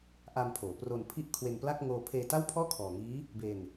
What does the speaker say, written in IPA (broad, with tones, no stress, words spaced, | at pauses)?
ʔa˧mpʰoː˩˦pro˧n pʰi˥˩ʔkʰwe˧npla˥˩k̚ ŋoː˧pʰeː˧ta˥˩wpʰɔː˥˩ kʰɔː˨˩ ŋiː˦˥ | be˧n